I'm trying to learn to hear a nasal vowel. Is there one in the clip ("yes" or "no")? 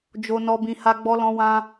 yes